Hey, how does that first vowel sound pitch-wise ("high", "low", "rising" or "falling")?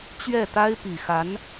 falling